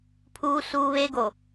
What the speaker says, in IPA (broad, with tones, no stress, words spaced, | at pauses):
pʰuː˦suː˦βe˦ɡo˨